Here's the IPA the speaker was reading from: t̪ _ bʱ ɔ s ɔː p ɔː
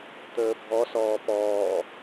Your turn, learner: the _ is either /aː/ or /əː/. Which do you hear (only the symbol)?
əː